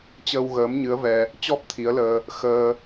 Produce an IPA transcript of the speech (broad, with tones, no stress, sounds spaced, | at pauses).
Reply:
t͡ɕ əː˧ w ɣ əː˨˦ m ɲ ɨ˨˦ ə̯ v ɛ˧ | t͡ɕ ɔ˦˥ p̚ t̪ʰ i˨˦ ə̯ l əː˧ | x əː˧